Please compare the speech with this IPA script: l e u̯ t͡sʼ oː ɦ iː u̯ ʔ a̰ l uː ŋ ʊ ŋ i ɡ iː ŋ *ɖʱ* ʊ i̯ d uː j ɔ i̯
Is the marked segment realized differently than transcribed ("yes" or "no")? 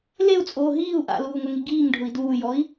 no